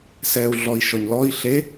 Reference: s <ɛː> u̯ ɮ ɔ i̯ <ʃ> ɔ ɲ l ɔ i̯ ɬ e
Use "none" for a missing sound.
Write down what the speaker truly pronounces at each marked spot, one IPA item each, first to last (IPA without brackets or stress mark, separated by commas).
ɛː, ʃ